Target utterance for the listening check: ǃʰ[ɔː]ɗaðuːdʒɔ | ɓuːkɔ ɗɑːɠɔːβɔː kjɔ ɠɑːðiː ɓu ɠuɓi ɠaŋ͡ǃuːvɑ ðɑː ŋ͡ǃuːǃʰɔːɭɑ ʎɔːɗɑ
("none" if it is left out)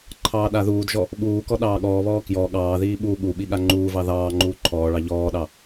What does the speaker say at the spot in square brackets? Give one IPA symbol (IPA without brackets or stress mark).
ɑː